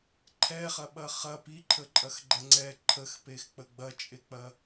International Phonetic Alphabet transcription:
ǃʰ ɛ χ ɐ ɓ ɐ χ ɐ p i ǃʰ ə ǃʼ ɐ x ɡ͡ǃ ɛ ŋ͡ǀ ɛ ǃʰ ə x p e x k͡p ə ɡ͡b ɐ t͡ʃʼ e k͡p ɐ

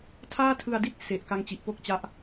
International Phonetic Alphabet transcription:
tʰ aː˥˩ tʰ ɯ˧ a̯ d i˥˩ t̚ s e˨˩ ʔ k a˦˥ ŋ t͡ɕ i˨˩ ʔ p o˥˩ k̚ t͡ɕ a˦˥ ʔ

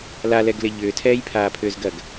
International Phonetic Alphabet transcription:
l a l ɛ ɡ l ɪ ʎ ʏː tʰ ɛː j pʰ aː pʰ ʏː z ɡ ɐ ɡ

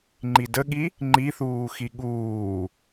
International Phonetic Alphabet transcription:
ŋ͡ǃ i d ə ɠ i | ŋ͡ǃ i θ uː x i ɠ uː

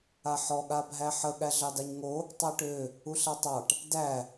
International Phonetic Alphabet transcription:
a ħ ɔ ɠ a bʱ æ ħ ə ɠ æ ɮ ɑ d a ɲ ŋ o | tˤ ɑ ʈ ø | u ɬ a tˤ ɑ ʈ | d æ

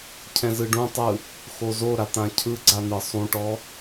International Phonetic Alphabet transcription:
cʰ ɛ̃ z ɯ ɖ ũ tˤ ɯ | x o z o ɾ a t̪ ã cʰ ɯ ɡ͡ǀ a n̪ ɯ sˤ ũ ʈ ɔ

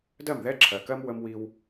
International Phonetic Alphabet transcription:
d ɜ˦˨ m ð ɛ˦ ǁʰ ɜ˨ k ɜ˦ m w ə˦ m w i˦ w

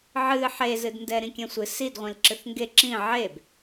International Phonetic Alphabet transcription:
ʕ ɨ ħ e z ɨ d n d ɛ ɾ ĩ kʲ ɛ̃ sʷ ɨ s i d ʁʷ ĩ l ǁ ɨ θ ŋ ɡ e ǁ ĩ ʕ e b

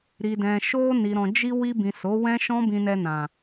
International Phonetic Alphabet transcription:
ɾ i˨ d ɛ̃˨ ʃ o˧ n i˨ ɾ ɔ̃˨ d͡ʒ i˧ w i˧ b ĩ˨ s o˨˦ w ɛ̃˦ ʃ ɔ̃˦ b ĩ˧ n ɛ˧ n ã˨

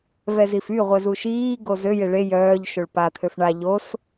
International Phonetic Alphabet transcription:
v ɛ z i f y ʁʷ ɛ z u ʃ iː ɡ o z ø j e ɭ e j œː ʎ ʃ o ɭ p a t̪ʰ ø f ɳ a ʎ o s

